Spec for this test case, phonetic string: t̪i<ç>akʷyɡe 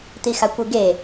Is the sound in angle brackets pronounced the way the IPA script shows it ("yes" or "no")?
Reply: no